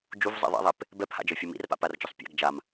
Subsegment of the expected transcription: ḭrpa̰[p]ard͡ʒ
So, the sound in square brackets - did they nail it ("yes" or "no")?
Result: yes